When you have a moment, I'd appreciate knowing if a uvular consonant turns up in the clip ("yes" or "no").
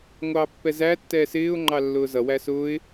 no